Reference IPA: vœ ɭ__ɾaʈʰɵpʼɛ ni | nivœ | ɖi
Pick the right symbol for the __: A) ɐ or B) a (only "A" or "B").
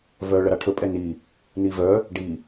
A